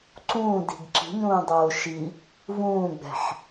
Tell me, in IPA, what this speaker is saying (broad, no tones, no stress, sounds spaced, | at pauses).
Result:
ǀ ũː d i̤ ɡ ǁ i̤ ɲ ũː dˤ oː ʃ i | v ũː ɡ͡b ɛ̤ ħ